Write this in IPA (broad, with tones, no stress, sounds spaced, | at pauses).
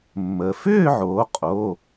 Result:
mː ə˩ f ʏː˥˧ ʕ oː˩˧ qʼ o˩˧˩